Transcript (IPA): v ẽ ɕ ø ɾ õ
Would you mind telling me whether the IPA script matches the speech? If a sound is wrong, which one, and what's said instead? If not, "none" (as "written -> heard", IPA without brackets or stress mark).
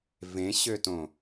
ɾ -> t